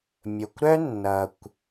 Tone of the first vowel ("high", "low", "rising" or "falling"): low